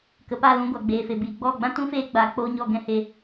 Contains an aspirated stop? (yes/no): no